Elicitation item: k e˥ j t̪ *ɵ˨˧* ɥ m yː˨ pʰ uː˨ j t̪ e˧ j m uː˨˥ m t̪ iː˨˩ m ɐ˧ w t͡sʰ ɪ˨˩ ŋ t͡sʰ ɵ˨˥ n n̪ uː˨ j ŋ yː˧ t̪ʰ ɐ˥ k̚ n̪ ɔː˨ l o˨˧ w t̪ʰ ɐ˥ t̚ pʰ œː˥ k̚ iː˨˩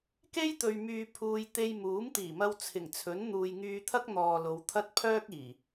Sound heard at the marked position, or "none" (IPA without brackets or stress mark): ɵ˨